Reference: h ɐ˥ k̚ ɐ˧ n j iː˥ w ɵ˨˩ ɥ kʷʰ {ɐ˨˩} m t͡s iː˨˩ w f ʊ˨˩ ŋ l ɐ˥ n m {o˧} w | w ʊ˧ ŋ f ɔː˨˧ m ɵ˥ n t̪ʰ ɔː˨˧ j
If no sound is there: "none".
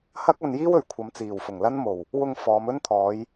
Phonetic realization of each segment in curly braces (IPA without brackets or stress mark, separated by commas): ɐ˨˧, o˨˩